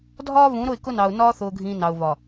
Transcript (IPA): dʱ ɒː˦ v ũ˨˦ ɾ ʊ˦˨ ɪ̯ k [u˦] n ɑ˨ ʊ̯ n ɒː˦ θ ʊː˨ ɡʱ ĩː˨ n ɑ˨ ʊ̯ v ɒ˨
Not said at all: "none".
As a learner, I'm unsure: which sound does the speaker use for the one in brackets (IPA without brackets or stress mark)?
ʊ˦